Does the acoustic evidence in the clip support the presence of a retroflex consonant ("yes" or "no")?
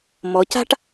yes